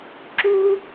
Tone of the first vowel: high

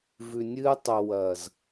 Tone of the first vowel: low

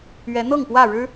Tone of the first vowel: rising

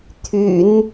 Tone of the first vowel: low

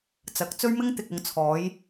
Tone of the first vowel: rising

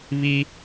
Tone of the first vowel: high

